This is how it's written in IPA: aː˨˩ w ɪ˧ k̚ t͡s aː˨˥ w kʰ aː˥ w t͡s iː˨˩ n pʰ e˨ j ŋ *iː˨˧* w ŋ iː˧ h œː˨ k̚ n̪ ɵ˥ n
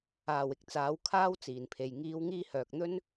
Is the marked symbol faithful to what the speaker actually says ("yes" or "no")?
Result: yes